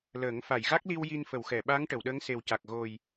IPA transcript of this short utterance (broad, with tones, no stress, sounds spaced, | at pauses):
l əː˨˩˦ ŋ f a˨˩˨ j ɣ a˦˥ k̚ l i˧ w j i˧ n f ə˨˩˨ w x ɛ˨˩˨ ɓ a˧˥ ŋ ʈ ə˨˩˨ w ɗ əː˧˥ ŋ s e˨˩ w c a˨˩ k̚ ɣ o˨˩ j